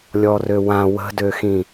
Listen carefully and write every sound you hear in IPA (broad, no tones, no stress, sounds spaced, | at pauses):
lʲ ɔ r ø w ã w ə̤ d ø x ĩ